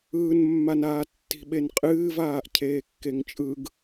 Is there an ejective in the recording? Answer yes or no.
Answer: yes